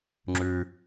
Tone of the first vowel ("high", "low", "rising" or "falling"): high